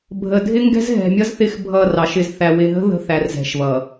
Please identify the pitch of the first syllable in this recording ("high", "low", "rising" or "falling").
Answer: low